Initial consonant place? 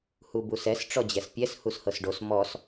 glottal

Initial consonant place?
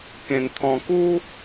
velar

